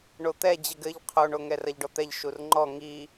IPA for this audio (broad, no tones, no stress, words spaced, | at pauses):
ɳot̪ɛ d͡ʑɘɡɘʎ qʰoɳo ŋɛrɐʎɖɔt̪ɛʎ ʃurŋ͡ǃɔ ŋi